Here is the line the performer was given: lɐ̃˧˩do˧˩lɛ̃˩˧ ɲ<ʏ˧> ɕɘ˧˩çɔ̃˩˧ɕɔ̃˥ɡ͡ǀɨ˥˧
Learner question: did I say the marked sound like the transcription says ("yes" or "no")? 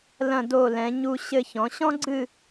no